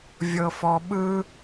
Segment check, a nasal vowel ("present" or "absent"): absent